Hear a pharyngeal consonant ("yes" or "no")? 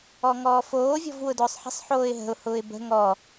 yes